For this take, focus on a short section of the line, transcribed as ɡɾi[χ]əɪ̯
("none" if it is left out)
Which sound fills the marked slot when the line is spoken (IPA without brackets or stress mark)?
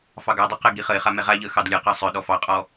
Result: χ